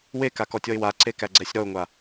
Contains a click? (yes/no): yes